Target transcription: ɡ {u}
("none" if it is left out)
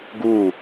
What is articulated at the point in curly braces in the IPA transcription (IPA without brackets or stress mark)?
u